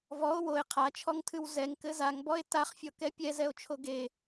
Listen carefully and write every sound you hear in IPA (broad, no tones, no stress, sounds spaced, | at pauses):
v ɔ o̯ w o e̯ qʰ a t͡ʃʰ ɔ ŋ tʰ ɨ w z ɛ ŋ k ɘ z a ŋ b ɔ e̯ t a χ fʲ ɔ k ɛ pʲ ɛ z ɛ o̯ t͡ʃʰ o ɡ e